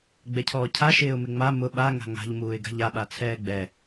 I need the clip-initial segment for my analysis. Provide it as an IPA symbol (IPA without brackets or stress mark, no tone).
ɡ͡b